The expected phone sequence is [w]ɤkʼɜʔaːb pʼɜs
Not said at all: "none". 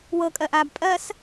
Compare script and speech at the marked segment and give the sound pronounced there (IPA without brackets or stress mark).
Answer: w